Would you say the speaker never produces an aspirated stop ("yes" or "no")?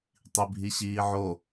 yes